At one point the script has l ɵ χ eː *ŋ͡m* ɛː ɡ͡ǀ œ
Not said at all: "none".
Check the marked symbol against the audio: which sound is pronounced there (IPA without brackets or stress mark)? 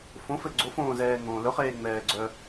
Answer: ŋ͡m